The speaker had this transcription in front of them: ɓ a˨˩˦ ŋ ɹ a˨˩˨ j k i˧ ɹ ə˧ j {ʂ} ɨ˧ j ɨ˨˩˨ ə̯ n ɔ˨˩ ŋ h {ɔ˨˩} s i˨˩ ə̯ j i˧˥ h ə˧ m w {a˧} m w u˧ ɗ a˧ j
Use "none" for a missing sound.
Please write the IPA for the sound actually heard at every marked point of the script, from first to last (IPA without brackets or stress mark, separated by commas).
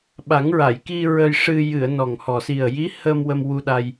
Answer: ʂ, ɔ˨˩, ə˧